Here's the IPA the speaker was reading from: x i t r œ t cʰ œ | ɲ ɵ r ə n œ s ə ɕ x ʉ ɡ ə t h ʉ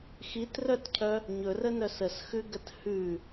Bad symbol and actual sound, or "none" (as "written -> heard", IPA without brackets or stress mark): ɕ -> s